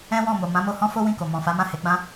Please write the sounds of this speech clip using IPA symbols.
ɛ̃˦wɔ̃˦˨mo˨ mã˨˦mo˧hɔ̃˦ fo˦wĩ˦˨ko˨ mɔ̃˨fa˨˦mã˦˨ he˨˦ɡ͡bã˦

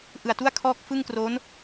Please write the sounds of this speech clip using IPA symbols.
ʔɯ˨˩a̯tu˥˩a̯kʰɔː˦˥k̚ fɯ˥˩ŋkro˦˥n

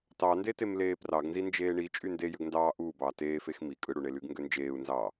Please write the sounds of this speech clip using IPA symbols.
tɑndetem leːprɑɡnzi nd͡ʒeːɳi t͡ʃʼynde jøɡndɑː ʔuːbɑː teːfex mi kʼɯɽuɳelyɡ ŋɡønd͡ʒeːu̯nzɑː

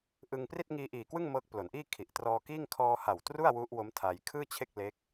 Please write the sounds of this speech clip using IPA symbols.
ʔɯ˧ŋ pri˥˩t̚ŋiː˧ʔiː˨˩kwɯ˥˩ŋ mɤː˦˥k̚plo˩˦nʔiː˥˩ kʰi˨˩ʔtrɔː˧kiː˥˩ŋ kʰɔː˧ha˨˩w tru˥˩a̯ wu˦˥ʔwo˦˥mtʰa˧j kʰɯː˥˩t͡ɕʰe˥˩k̚ le˦˥k̚

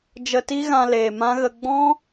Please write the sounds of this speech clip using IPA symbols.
d͡ʒə˧ti˦ɣã˧leː˨ mã˦ɣə˧ ɡ͡bɔ̃˦

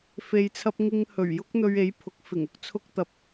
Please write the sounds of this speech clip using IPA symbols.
fe˨jt͡sʰɐ˧p̚ŋɪ˧ŋhɵ˨˩ɥ jʊ˥k̚n̪ɵ˧ɥe˨˥j pʰʊ˨˥k̚fɪ˨˩ŋ ʊ˥k̚t͡sʰʊ˥k̚t̪ɐ˧p̚

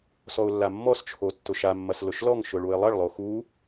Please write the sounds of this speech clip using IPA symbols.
sɔʊ̯lːamːɔst͡ʃʰo tːʊʃamːɐs lʊʃlɔŋʃʊ ɭuɪ̯lˠɐɭlˠo xu

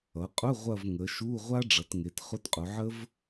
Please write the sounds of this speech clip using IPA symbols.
ʌ˩˧qʼʊ˧˥˧ ʁʷɐ˦˨v ŋə˩˧ʃu˧˥˧ ʁʷa˥ ɖ͡ʐʌ˩˧tŋe˩˧t χʊ˧˥˧tqʼʊ˩˧ʕə˥v

